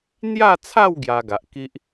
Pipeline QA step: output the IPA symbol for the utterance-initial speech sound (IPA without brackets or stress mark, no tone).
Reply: n̪